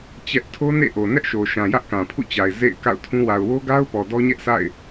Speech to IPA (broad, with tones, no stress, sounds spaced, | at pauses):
t͡ɕ ɛ˦ ʔ tʰ o˦ n ḛ˦˨ ʔ o˨ n ɛ˦ ʔ ʃ o˨ ʃ ã˨ j ä˦ ʔ k ã˨ pʰ ṵ˦˨ t͡ɕ a˨ ɪ̯ z ḛ˦˨ ɪ̯ k a̰˦˨ ʊ̯ tʰ ũ˦ w a˨ ʊ̯ w o˦ ɡ a˦ ʊ̯ p ɔ˨ d ɔ˦ ɲ ɛ˦ ʔ sʰ a̰˦˨ ɪ̯